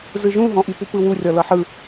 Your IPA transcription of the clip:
z ɯ ʒ ũ ɦ ɔ̃ ʔ i p u p ɯ w u rʲ ɔ l ɤ ħ ɯ

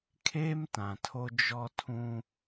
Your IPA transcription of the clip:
kʰ eː˦ m t ã˨ tʰ o˦ d͡ʒ ɔ˦ tʰ ũ˦

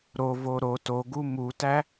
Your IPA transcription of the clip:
ɾ o v o ɾ o t o ɡ u m u t æ

